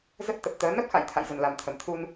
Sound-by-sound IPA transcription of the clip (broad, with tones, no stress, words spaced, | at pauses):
zə˦˥t̚t̪ə˨˩p̚t̪əː˨˦ nə˦˥p̚ xa̰˧˨jt̪ʰa̰˧˨jzə˨˩nla˨˩m t̪ʰə˨˩mt̪ʰu˧n